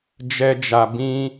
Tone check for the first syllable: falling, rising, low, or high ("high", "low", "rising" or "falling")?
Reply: high